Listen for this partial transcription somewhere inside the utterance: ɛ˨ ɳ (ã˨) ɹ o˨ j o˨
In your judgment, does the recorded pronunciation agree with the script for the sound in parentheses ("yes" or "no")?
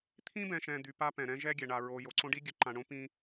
no